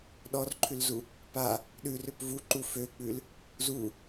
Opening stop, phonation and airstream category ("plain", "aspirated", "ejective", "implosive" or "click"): implosive